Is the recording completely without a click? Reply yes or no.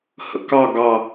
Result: yes